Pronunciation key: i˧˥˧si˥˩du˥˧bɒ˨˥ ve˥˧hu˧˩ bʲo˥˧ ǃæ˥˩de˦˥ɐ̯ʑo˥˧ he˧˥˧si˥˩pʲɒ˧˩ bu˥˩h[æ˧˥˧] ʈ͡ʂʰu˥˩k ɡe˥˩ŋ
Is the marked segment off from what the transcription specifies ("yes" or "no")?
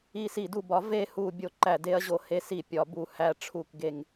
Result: no